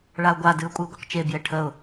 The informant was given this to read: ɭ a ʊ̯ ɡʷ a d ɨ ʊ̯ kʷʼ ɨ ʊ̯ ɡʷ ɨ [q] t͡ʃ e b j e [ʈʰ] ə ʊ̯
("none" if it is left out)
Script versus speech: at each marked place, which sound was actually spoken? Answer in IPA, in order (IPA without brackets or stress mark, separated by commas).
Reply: q, ʈʰ